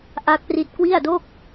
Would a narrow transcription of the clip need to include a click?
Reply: no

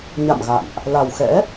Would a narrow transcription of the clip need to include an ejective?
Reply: no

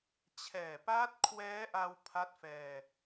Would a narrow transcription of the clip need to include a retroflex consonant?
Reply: no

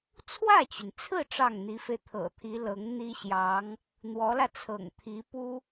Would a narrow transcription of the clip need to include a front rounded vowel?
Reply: yes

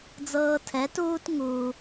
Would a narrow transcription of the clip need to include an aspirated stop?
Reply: yes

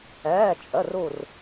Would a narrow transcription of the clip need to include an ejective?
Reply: yes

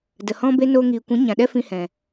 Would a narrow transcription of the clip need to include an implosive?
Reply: yes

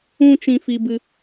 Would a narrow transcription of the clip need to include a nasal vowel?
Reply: yes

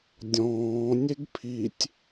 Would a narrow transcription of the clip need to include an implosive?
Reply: no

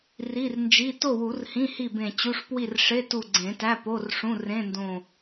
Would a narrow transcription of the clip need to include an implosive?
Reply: no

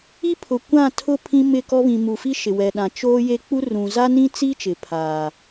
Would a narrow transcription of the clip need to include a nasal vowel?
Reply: yes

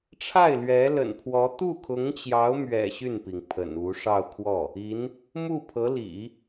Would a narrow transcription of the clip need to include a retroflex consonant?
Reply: yes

